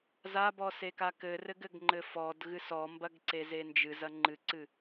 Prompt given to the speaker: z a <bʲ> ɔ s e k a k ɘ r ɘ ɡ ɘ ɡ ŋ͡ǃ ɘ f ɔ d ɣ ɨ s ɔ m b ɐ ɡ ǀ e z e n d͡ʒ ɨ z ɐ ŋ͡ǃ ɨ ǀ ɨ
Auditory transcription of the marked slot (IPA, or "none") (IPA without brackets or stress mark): b